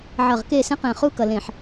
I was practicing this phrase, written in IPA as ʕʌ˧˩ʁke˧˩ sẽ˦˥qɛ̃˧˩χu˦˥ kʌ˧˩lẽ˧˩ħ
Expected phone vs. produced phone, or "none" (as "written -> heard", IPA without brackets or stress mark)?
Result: e˧˩ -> e˥˧